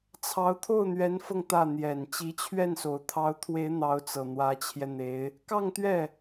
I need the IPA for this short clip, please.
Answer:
t͡sʰ ɑ˧˥ ʊ̯ t̪ʰ o˥˩ ʊ̯ n̪ ɥ ɛ˧˥ n f ɤ˧ ŋ t̪ ä˥˩ n̪ j ɛ˨˩ n t͡ɕ i˧˥ t͡ɕʰ ɥ ɛ˥˩ n s o˨˩ ʊ̯ t̪ʰ ɑ˧˥ ʊ̯ t̪ʰ w e˧˥ ɪ̯ n̪ ɑ˧˥ ʊ̯ t͡s ɤ˨˩ n̪ w ä˧˥ t͡ɕʰ j ɛ˧ n̪ e˧˥ ɪ̯ | k ɑ˥˧ ŋ t̪ ɥ ɛ˥˩

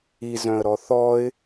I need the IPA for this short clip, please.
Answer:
i z œ̃ ə̯ ɾ ɔ θ ɔ ɪ̯

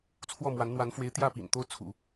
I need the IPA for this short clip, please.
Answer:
t͡sʰ w ɔ˥˩ m w a˧˥ n n̪ w a˧˥ n f w e˧˥ ɪ̯ t̪ j ä˥˩ p ḭ˨˩ n t̪ o˥˩ ʊ̯ t͡sʰ ṵ˨˩˦

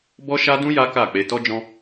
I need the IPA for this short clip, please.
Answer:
b ɔ˦ ʃ a˦ d ũ˦ j a˦ k a˦˨ k͡p e˧ t ɔ˦ d͡ʒ ɔ̃˦

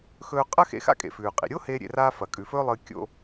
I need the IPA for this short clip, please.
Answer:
x ɵː˧ qʼ ɐ˥ x ḛ˧ x a̰˥ kʼ ḛ˩ f ʉː˩ qʼ ḭ˩ ɾʲ o˥ h eː˥ ɾʲ ḛ˧ r aː˥ f ɐ˩ kʼ ʉ˩ f ɵː˥ lˠ ɨː˧ kʲ o̰˥

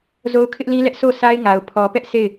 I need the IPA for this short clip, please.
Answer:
z o˦ ʊ̯ kʰ ɪ˦ ʔ l ĩ˦ l ɛ˦ ʔ s o˦˨ s a˦ ɪ̯ ŋ a˨ ʊ̯ pʰ ɔ˨ p ɛ˦ ʔ s e˦˨ ɪ̯

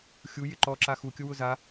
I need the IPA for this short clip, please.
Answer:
xʲ u j ɪ ǃ ɔ ǁ a x u kʲ ʊ w ʊ z a

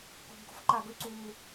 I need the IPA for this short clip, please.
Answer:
k o̤˨˩ b ɡ o̤˩˥ f ǃ a˨˩ ɡ ɵ˥˧ ǀ uː˨˩

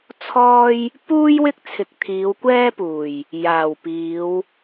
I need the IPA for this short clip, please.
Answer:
t͡sʰ ɔː˥ j | p uː˥ j w ɪ˥ k̚ t͡sʰ ɪ˨ k̚ t̪ʰ iː˨˧ w kʷ ɛː˥ p uː˨˩ j | j aː˨˩ w p iː˨˧ w

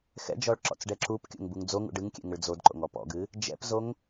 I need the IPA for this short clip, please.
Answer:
x ɛ̰ d͡ʒ ɔ ɭ ǁ ɔ̰ t͡s ɖ ɛ ǁ u p kʲ o̰ ŋ b u ŋ d͡z o ŋ ṵ ɖ ɨ ŋ kʲ ɛ̰ ŋ ə ɭ d͡z o d ǃ o̰ ŋ ɔ p ɔ̰ ɡ ɨ | d͡ʒ ɛ̰ p z o ŋ

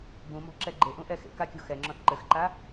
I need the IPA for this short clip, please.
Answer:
b ũ m ɔ̤ ǁ ɛ ɡ͡ǃ e ʔ ũ ʔ ɛ x ḛ k a kʲ o̤ x ɛ ŋ͡ǁ ɔ̃ θ ǃ ɘ x ǃ a

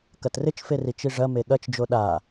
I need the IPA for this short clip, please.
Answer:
k ɐ t r ɪ t͡ʃ f e r i t͡ʃ i ʐ ɐ m e ɠ ɐ t͡ʃ d͡ʒ o ɗ a

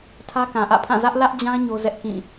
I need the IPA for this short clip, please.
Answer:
tʰ ä˦ k ã˨ ʔ ä̰˦˨ pʰ ã˦˨ z ä˦ ʔ l ä˦ ʔ d͡ʑ ã˦ ɲ o˦ z ɛ˦ ʔ k ĩ˦˨

